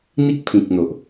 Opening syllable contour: high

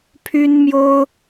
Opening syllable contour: high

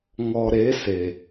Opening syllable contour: low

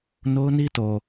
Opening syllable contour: high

